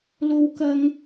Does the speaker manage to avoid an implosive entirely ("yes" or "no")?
yes